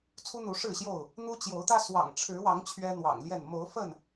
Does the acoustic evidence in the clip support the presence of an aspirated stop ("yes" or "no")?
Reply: yes